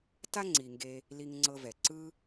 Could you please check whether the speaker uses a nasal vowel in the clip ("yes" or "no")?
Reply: no